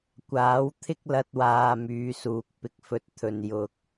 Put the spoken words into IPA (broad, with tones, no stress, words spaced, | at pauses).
kʷaː˨˥wt̪ʰɪ˥k̚lɐ˧t̚waː˨ myː˨˧suː˨k̚ pɪ˨k̚fɵ˨t̚t̪ʰɵ˨n jʊ˧k̚